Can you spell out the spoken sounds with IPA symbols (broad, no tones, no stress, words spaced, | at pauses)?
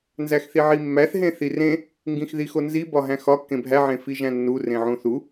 nzæxθiʕimːæθ ɦẽθirẽ | ŋɡĩxðixonzi bɒɦæ̃xɒ kːẽbʱæ ʕẽfiʒæ̃nːu rẽʕũθu